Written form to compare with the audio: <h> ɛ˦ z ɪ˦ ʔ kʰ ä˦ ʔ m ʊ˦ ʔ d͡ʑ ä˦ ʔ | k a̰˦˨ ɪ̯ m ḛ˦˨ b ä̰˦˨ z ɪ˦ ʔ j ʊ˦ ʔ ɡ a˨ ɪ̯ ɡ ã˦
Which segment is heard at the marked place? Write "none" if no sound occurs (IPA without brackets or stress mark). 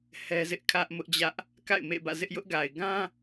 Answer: h